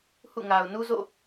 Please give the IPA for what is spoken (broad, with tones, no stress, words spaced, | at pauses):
hṵ˦˨ŋa˨ʊ̯ nu˦zo̰˦˨